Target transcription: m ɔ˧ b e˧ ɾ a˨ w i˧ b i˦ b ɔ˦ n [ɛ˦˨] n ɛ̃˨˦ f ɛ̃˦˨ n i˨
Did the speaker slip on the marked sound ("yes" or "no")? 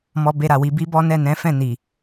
no